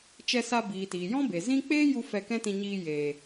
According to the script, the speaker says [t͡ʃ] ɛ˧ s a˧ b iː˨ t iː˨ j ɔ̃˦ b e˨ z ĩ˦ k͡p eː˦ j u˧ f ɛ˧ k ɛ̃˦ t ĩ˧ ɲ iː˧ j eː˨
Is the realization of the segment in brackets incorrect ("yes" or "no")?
no